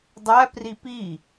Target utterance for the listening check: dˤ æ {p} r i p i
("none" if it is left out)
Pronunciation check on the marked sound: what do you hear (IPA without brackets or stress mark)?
p